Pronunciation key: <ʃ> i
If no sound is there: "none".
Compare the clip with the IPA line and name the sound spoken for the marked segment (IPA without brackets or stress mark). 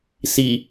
s